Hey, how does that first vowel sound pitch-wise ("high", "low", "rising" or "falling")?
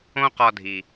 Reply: high